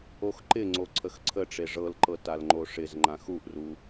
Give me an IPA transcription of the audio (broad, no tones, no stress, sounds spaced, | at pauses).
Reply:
o x ǃ ɪ ŋ͡ǀ o ǀʰ ə x ǀʰ ə ʈ͡ʂ e ʐ ɤ l ǃ ɤ t a l ŋ͡ǃ o ʂ ɪ z ŋ͡ǃ ã x u ʔ r u